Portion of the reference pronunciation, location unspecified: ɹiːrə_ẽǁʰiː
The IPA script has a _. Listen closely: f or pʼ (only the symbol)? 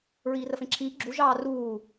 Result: f